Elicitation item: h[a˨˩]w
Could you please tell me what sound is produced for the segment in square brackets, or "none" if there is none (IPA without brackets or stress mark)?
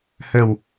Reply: ə˨˩